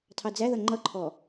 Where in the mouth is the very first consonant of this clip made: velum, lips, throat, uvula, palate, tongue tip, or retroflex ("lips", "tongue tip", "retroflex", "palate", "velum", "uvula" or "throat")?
tongue tip